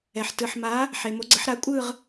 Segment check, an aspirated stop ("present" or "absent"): absent